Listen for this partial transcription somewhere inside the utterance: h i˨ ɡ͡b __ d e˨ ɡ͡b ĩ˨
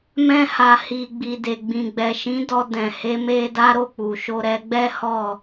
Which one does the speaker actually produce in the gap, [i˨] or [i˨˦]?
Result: i˨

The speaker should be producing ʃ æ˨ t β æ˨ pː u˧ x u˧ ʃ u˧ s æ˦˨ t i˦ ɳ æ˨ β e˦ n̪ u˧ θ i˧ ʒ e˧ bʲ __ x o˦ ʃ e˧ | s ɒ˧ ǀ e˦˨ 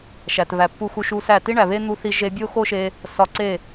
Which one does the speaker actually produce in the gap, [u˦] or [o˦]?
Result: o˦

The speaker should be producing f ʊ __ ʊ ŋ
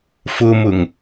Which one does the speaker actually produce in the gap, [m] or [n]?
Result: m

